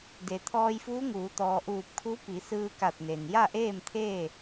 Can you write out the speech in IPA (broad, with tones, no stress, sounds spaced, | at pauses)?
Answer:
d e˩ t̪ʰ ɔː˧ j f uː˧˥ ŋ uː˩˧ t̪ ɔː˩ ʔ uː˧˩ p̚ kʰ u˧˥ p i˩˧ s ɯː˧ k a˧˩ t̚ n e˩ n j a˥˨ ʔ eː˥˨ m t̪ʰ eː˥˨